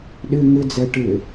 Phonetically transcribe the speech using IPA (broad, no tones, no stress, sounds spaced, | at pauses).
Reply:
ɗ ɪ ŋ ɪ d͡z ɛ ʈ ɪ